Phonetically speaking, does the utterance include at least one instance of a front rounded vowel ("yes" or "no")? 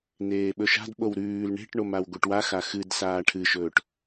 no